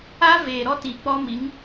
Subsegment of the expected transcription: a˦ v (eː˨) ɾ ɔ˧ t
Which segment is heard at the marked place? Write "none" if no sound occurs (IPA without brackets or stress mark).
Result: eː˨